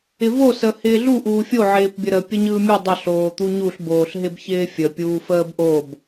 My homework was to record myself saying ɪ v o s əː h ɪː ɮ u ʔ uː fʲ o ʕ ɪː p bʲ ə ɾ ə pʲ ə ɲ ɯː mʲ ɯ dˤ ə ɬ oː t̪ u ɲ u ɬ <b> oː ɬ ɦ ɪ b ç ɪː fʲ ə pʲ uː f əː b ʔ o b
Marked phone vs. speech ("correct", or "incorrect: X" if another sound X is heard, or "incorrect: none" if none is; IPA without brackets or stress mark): correct